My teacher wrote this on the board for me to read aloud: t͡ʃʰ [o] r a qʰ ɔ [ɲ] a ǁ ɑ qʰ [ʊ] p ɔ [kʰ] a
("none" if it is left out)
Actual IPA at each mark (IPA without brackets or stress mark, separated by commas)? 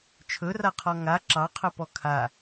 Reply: ɵ, ŋ, ɵ, kʰ